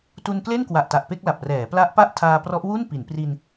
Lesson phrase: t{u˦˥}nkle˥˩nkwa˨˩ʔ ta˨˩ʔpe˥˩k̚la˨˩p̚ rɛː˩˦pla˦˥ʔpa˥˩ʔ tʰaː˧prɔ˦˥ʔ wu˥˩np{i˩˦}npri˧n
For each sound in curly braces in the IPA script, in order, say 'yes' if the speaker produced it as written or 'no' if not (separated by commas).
no, yes